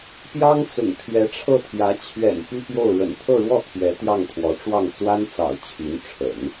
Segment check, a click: absent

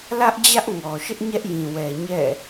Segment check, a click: absent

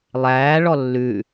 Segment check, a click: absent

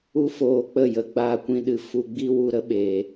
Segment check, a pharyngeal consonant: absent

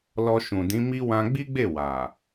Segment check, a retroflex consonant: absent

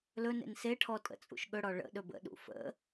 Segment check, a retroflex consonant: present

